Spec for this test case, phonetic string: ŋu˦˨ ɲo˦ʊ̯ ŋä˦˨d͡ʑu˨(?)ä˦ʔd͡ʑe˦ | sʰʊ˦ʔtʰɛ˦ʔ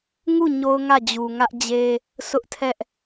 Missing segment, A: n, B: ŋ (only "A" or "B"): B